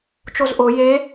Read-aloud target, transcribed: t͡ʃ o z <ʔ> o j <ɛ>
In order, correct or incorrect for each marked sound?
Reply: correct, incorrect: e

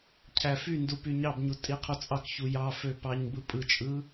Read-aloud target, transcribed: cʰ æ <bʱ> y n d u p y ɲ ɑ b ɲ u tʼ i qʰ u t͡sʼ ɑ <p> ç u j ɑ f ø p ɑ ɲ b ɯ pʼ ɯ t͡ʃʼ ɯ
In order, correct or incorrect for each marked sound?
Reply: incorrect: f, incorrect: k

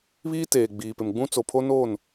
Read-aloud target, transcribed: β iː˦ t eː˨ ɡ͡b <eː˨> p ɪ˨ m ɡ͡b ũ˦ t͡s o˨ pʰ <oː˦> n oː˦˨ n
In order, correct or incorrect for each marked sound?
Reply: incorrect: iː˨, incorrect: o˦

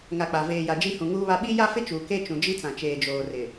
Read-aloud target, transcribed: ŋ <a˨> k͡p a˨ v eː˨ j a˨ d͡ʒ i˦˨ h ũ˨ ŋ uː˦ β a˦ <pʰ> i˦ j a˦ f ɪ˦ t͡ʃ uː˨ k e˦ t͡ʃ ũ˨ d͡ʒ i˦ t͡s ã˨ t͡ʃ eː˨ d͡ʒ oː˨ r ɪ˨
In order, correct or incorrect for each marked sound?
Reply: correct, incorrect: ɓ

